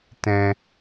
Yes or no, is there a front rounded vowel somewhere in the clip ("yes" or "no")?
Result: no